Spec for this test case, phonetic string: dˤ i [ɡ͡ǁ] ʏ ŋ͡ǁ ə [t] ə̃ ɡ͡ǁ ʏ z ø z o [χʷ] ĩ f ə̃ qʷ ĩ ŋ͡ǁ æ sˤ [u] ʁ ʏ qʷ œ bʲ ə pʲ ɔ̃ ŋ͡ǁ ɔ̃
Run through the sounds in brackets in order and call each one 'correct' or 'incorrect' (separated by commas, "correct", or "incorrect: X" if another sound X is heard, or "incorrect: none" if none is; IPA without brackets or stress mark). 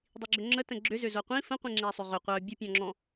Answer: correct, correct, incorrect: qʷ, incorrect: ʏ